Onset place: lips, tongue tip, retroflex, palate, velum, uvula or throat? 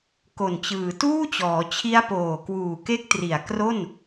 velum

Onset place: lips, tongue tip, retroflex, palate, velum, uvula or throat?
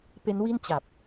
lips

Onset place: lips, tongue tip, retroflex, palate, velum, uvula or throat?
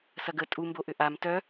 tongue tip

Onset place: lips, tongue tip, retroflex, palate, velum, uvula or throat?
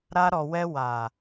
tongue tip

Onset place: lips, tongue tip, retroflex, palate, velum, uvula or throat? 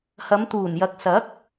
throat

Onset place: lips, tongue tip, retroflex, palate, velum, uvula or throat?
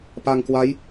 lips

